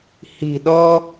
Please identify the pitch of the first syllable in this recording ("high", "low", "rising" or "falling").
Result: low